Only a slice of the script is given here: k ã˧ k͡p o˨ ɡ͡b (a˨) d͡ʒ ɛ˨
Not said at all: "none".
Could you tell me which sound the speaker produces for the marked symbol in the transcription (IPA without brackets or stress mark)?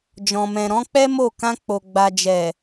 a˨